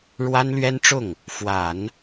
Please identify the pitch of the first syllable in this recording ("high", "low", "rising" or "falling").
high